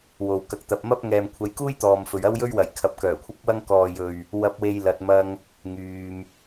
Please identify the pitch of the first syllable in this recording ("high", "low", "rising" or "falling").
low